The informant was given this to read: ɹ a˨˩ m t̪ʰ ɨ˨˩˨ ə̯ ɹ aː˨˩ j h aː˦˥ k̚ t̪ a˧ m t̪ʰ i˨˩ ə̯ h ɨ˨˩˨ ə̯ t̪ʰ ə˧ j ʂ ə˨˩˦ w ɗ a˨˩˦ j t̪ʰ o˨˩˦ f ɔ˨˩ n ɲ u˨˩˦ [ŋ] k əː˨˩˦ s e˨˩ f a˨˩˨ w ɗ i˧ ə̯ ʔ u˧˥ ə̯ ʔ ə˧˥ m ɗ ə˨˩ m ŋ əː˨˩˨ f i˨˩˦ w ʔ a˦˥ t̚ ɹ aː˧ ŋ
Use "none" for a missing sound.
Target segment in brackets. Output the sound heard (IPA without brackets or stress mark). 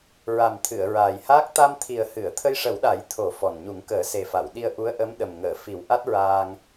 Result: ŋ